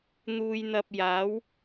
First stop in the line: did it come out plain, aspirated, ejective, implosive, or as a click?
plain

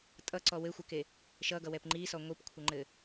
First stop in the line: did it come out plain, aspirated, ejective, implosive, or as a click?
ejective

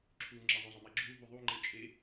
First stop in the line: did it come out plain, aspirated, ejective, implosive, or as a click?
click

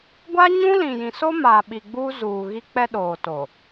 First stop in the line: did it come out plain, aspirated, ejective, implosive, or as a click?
plain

